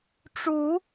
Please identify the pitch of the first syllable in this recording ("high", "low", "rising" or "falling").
rising